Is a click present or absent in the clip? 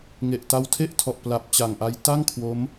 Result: absent